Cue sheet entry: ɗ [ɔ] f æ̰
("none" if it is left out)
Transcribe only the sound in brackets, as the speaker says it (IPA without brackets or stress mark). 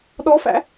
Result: ɔ